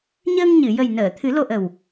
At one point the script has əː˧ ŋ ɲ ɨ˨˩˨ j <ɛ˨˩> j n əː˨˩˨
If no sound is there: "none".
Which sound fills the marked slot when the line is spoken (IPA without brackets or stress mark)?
ə˨˩